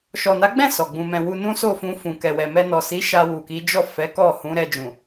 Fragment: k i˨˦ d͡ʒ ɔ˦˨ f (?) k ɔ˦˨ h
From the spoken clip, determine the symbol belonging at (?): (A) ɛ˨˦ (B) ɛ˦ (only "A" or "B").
A